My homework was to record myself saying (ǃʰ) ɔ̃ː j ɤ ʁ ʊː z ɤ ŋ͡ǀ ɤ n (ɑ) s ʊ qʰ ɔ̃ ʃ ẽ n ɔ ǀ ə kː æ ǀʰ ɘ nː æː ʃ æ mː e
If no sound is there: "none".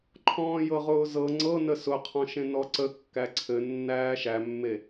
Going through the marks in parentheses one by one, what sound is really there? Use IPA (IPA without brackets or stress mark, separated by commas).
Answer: ǃʰ, ə